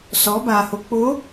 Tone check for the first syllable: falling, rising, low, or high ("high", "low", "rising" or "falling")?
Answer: rising